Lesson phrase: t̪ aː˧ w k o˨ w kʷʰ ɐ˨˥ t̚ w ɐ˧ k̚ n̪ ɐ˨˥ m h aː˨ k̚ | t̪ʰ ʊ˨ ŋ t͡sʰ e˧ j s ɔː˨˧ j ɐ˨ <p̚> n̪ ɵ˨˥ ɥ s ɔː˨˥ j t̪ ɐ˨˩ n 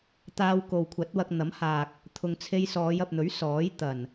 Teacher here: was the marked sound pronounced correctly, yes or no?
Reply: yes